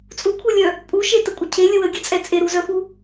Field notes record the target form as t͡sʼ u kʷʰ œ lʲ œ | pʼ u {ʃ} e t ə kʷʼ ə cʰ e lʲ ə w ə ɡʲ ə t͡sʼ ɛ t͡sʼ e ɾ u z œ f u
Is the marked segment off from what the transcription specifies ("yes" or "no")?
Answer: no